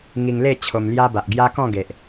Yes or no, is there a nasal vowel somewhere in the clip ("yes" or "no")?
yes